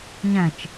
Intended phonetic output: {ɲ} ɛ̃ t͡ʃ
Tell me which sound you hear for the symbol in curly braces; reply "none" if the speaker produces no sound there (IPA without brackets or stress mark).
ɲ